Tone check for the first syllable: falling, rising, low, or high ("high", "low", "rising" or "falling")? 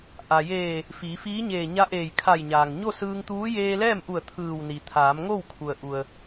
low